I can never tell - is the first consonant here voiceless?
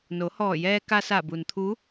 no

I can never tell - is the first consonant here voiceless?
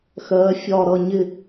yes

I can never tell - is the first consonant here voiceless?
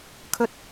yes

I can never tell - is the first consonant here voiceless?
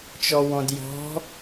yes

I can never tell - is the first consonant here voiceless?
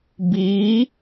no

